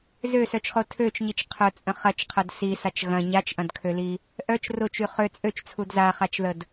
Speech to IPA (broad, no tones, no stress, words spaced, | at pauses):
zøsœt͡ʃχo tʰøt͡ʃɲit͡ʃ qʰœt͡sʼə̃ χɐt͡ʃqʰɐd sisat͡ʃ ɣɐ̃ ɲat͡ʃʔɐ̃dkʰøli | ʔœt͡ʃ rʊt͡ʃy χø t͡sʼøt͡ʃt͡sʰud zaχat͡ʃðəd